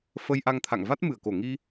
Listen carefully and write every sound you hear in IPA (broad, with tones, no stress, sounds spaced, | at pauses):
f ə˧ j ʔ a˧ ŋ t̪ʰ a̰˧˨ ŋ v a˦˥ t̚ m ɨ˧˩ ə̯ k o˧˩ ŋ i˧